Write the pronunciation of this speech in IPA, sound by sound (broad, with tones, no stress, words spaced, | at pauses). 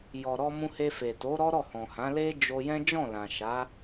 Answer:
jɔ˨ɾɔ˧ mũ˧he˧ fe˨to˨˦ ɾɔ˦ɾɔ˦˨hɔ̃˨hã˨˦ le˦d͡ʒo˧jɛ̃˦ d͡ʒɔ̃˦˨lã˨ʃa˨˦